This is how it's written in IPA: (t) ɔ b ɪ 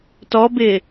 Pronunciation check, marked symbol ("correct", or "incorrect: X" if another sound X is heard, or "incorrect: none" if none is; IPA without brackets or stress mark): correct